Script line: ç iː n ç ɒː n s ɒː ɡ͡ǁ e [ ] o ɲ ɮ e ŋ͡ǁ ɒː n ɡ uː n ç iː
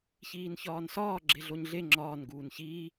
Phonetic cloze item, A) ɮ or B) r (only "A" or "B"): A